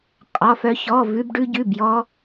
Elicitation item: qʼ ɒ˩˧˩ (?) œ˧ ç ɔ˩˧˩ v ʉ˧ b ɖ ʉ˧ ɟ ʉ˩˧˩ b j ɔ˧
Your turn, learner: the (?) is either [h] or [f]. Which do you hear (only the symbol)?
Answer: f